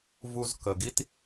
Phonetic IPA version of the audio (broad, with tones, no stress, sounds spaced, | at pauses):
v u˧ z k ə˨ ɡ i˦ t